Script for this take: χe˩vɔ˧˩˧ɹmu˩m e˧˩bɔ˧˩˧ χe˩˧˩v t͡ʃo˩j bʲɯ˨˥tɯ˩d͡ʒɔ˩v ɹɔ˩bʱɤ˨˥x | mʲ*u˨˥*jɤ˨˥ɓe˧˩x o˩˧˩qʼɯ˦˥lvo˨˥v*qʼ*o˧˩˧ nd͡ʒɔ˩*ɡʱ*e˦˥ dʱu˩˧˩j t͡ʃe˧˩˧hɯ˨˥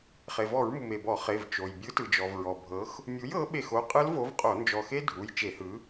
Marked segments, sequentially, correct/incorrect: correct, correct, incorrect

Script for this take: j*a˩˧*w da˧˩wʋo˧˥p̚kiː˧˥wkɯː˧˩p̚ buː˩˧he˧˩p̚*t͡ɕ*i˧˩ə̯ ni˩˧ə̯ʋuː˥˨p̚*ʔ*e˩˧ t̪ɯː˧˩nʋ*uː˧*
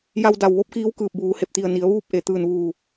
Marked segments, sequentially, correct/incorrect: incorrect, incorrect, correct, incorrect

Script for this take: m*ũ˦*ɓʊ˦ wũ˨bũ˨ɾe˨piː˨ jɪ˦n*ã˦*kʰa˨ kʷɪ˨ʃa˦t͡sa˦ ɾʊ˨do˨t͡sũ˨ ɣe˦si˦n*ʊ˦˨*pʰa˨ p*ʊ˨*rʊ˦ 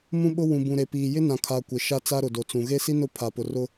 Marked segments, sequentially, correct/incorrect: correct, incorrect, correct, correct

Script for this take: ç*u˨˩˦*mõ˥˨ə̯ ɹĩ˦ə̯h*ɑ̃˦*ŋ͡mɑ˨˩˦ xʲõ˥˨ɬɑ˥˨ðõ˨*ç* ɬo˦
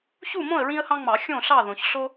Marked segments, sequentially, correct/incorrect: incorrect, correct, correct

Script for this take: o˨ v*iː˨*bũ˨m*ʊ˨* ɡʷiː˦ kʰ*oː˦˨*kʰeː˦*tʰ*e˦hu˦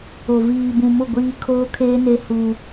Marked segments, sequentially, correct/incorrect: correct, incorrect, incorrect, incorrect

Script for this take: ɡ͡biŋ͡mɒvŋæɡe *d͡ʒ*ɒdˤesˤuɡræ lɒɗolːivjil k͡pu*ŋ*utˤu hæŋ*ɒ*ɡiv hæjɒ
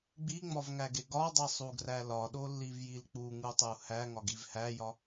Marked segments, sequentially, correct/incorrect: incorrect, correct, correct

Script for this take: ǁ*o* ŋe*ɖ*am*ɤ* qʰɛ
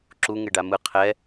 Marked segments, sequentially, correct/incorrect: incorrect, correct, incorrect

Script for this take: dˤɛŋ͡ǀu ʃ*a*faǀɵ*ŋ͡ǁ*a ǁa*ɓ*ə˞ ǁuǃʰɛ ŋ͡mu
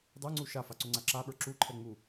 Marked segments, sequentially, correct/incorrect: correct, incorrect, correct

